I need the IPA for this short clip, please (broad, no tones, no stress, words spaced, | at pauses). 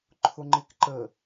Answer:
ǃʰʊŋ͡ǃɪkǃə